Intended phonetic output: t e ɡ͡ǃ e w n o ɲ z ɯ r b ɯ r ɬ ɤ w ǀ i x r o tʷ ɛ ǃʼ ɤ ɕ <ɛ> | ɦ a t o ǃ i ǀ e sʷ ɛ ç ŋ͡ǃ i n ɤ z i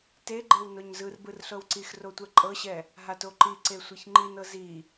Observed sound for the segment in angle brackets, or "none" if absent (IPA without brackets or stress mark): ɛ